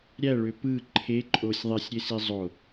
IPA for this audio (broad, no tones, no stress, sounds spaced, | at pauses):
ɾʲ æ ɭ ø p ɯ ǃʰ e ǃʼ o sʲ ðˤ e sʲ ɾʲ e s i zˤ o